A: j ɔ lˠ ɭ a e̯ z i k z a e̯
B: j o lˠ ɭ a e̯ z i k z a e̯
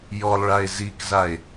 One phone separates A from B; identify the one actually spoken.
A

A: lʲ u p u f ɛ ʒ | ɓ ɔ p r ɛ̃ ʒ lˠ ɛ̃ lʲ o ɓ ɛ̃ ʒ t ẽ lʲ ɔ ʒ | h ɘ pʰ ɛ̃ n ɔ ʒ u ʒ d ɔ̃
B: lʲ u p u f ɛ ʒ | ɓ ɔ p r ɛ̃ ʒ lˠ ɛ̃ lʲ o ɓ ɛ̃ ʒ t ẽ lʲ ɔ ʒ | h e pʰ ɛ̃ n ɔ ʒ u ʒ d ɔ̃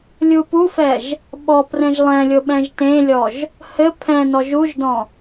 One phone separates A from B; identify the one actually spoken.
A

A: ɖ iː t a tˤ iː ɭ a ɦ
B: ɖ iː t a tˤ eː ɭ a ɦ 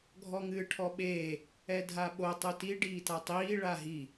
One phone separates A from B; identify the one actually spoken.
A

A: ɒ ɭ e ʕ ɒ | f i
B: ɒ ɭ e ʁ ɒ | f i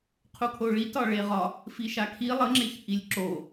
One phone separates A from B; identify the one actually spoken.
B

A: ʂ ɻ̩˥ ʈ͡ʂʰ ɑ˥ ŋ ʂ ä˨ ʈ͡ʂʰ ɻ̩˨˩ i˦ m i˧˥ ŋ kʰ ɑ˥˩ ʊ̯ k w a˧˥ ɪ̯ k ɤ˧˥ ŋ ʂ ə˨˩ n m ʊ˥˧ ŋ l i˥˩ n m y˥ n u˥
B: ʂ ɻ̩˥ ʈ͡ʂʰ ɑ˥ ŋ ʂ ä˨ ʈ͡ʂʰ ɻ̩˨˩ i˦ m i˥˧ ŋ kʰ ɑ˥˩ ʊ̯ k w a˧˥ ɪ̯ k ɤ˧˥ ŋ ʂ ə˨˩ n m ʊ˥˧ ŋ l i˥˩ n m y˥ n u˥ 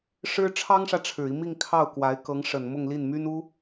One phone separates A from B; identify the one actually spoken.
B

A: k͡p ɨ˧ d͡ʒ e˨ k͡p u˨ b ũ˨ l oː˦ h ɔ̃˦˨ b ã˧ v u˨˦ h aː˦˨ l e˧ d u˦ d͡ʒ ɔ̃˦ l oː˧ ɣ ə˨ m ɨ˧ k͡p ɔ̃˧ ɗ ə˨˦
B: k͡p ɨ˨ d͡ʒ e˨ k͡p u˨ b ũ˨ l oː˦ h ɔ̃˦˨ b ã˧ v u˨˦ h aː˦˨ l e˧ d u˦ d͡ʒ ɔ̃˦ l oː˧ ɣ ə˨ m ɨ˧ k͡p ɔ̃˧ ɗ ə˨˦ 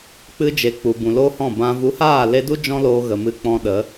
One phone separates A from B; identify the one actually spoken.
A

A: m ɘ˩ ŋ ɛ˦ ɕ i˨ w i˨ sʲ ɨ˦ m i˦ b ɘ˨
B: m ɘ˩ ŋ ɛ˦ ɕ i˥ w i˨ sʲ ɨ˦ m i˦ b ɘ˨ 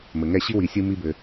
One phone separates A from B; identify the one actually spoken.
B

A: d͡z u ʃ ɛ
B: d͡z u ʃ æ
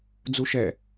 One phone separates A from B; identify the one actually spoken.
A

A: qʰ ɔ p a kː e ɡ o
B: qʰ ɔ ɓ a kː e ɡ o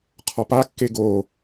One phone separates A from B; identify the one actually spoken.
A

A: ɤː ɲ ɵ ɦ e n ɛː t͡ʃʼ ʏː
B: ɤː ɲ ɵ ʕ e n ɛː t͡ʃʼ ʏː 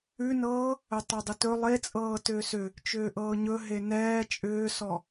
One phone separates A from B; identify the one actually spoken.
A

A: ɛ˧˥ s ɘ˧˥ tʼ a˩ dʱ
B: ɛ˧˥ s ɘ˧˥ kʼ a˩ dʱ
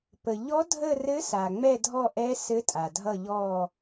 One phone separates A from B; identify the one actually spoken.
A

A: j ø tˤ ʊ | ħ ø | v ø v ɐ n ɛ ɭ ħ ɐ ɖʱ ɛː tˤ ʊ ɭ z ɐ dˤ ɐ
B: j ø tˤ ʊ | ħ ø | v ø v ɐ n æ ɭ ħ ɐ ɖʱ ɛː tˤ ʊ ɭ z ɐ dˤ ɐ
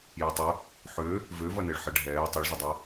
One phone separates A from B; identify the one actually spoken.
A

